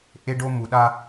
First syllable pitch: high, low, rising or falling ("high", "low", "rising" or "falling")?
high